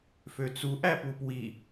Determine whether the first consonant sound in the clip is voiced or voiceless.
voiceless